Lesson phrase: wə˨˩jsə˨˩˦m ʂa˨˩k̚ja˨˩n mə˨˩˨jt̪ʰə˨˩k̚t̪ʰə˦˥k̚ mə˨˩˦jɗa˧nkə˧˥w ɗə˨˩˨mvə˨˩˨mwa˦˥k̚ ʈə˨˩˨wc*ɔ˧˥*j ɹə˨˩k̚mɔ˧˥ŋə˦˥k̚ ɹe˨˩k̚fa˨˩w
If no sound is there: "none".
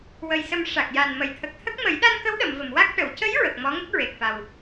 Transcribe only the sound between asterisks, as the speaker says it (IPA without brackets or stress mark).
ə˧˥